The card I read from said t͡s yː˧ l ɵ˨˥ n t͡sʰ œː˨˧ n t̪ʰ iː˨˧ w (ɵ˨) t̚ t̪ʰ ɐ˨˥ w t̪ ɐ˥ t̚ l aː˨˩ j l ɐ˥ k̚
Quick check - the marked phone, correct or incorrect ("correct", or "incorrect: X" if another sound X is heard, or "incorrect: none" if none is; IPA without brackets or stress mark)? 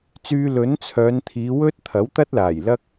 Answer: incorrect: ɵ˥